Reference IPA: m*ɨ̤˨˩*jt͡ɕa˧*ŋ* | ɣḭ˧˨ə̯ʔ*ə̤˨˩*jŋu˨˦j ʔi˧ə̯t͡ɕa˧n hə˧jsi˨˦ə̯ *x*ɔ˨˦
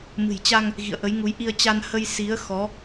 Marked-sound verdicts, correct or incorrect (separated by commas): correct, correct, incorrect, correct